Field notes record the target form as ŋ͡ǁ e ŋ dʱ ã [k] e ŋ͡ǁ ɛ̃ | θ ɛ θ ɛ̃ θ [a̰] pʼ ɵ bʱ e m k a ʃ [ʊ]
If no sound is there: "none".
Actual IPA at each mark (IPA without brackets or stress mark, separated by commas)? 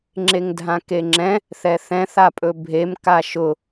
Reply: k, a, ʊ